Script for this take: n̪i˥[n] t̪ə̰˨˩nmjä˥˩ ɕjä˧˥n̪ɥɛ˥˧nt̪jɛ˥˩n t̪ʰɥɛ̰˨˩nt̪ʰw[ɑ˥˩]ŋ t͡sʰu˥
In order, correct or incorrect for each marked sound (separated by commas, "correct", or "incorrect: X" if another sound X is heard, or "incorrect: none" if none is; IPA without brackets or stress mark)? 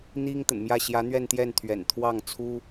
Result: incorrect: ŋ, correct